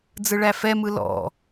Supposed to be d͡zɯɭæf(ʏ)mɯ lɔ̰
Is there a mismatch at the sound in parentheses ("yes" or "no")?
yes